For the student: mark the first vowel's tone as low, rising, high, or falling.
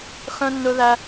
high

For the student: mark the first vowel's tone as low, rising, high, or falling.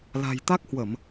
low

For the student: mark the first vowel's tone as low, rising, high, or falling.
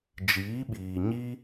rising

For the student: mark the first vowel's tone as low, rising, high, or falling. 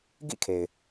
falling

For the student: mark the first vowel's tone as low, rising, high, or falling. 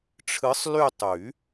rising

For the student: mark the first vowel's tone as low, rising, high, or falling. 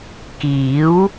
rising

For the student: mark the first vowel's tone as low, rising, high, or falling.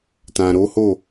low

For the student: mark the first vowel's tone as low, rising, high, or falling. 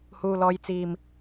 low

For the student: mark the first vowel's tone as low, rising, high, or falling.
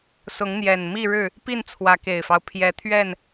rising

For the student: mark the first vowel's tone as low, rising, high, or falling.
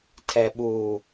low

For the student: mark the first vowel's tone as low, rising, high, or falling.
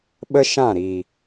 high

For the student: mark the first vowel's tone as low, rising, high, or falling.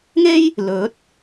high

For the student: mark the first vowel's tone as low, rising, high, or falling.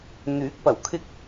rising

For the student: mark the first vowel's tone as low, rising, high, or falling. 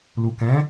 low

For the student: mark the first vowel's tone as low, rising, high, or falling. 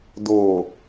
low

